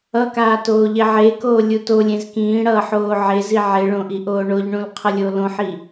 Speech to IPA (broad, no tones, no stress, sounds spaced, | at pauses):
ʌ k aː t oː ʎ e ʕ e k oː lʲ u t o lʲ ẽ z k ĩː ɽ ʌː ħ oː ʕ e z i ʕ e ɭ õ ʔ i ʔ oː ɳ o ʎ ɳ ũ l qʰ ʌ lʲ o l õ ħ i